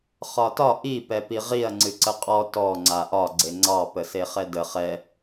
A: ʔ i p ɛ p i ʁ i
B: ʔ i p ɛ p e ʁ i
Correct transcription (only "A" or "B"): A